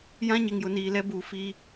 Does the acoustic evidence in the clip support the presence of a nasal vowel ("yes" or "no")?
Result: yes